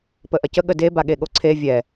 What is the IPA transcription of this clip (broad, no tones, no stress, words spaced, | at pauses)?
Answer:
pəʔɐcə ɠəde baɠeɠoǀʰe vʲɛ